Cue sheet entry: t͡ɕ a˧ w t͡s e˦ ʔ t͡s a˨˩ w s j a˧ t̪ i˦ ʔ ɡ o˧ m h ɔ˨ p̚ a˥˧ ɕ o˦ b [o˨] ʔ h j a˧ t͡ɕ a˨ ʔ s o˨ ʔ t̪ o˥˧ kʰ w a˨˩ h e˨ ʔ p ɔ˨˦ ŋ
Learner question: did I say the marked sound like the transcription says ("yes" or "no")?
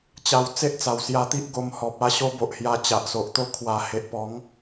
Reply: yes